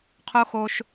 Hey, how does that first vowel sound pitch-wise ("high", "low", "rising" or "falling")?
high